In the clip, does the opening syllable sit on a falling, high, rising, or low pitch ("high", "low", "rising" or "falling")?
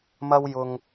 high